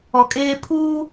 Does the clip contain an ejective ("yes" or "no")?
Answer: yes